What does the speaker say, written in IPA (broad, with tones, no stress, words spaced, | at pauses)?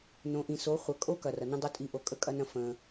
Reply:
nõ˨ʔĩ˨so˨˦ χʷɐ˨ kʼo˦ kɐ˨rɐ˨nə̃˦ dˤo˦tʼi˧ʔo˨ kʼə˧kʼɐ˦nɐ̃˦ fə̃˧